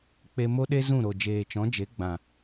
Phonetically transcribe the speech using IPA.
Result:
k͡p e˧ m o˦ ɗ e˦ z ũ˦˨ ɾ o˨ d͡ʒ eː˨ t͡ʃ ɔ̃˨˦ d͡ʒ e˨˦ ɡ͡b ã˨

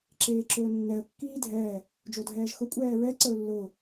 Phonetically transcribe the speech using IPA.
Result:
ǁ eː ǁ ɵː nː ɛ ə̯ kː iː dʱ ɛː | d͡ʒ o dʱ ɛː ʒ x ʊ kʷʼ ɛː ɹ ɛ ǀ ə ʊ̯ lː ʊː

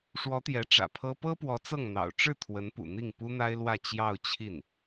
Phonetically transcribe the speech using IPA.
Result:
ʂ w ɔ˧˥ t̪ j ɛ˧˥ ʈ͡ʂ ä̰˨˩ pʰ ɤ˥ p ɤ˥ p w ɔ˧˥ t͡s ɤ˥˩ ŋ n̪ ɑ̰˨˩ ʊ̯ ʈ͡ʂ ɻ̩˥˩ t̪ʰ w ə˧˥ n p ṵ˨˩ n̪ i˥˩ ŋ p u˥ n̪ a˥ ɪ̯ l w ä˥˧ t͡ɕ j ɑ˥˧ ʊ̯ t͡ɕʰ i˥˩ n

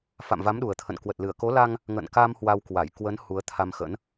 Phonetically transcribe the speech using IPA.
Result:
f a̰˧˨ m v a˨˦ m ɗ u˨˩ ə̯ t̪ʰ ə̰˧˨ n k w ə˨˩ t̚ l ɨ˧˩ ə̯ k o˨˦ l a˧ ŋ | ŋ ə̰˧˨ n k a˧ m h w a˧ w k w a˧˩ j k w ə˨˦ n h u˨˦ ə̯ t̪ʰ a˧ m x ə̰˧˥ n

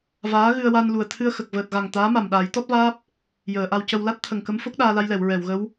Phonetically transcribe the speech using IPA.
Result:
v aː˧˥ ɣ ɨ˧ ə̯ w a˧ n l u˨˩ ə̯ t̪ʰ ɨ˧ ə̯ x ə˨˩ k̚ v əː˨˩ t̚ ɣ a˨˩ ŋ t̪ aː˧˥ m a˨˩ m ɗ aː˨˩˦ j t̪ ɔ˦˥ t̚ v aː˦˥ p̚ | j əː˨˩˨ ʔ a˧ w c ə˧ w l a˦˥ t̚ t̪ʰ ə˨˩ ŋ k ə˧˥ m f o˦˥ k̚ ɗ aː˧ l a˧ j l ɛ˨˩˨ w ɹ ɛ˨˩˨ w ɣ ə˧˥ w

